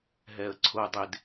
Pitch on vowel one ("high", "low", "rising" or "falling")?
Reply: low